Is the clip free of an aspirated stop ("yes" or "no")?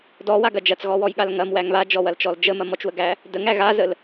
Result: yes